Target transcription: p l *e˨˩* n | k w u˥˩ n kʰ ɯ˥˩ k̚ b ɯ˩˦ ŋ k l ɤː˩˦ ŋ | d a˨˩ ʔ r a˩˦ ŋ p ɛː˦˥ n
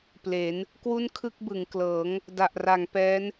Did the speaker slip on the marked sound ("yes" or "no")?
yes